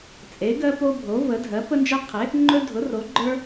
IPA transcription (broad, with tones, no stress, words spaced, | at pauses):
t͡sʼe˩˥ɡɜ˦po˦ bʱo˩˥və˩˥ dʱɜ˩˥pə˦nd͡ʒɜ˦qʰe˩˥ | ŋ͡ǃɵ˦dʱʊ˩˥ ro˩˥ɡ͡ǃə˞˦